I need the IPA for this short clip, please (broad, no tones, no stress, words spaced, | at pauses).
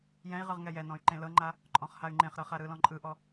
jɛ̃i̯ʁɯʁ ŋɛjɛnɔ̃y̯ ǃẽlɤŋ͡ǃa | ǃʼɔ̃χhay̯ŋ͡ǃẽχɾɤ χaɾɯlɔ̃ ǃʼɯʔɔ